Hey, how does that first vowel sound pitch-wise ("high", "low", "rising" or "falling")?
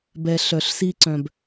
low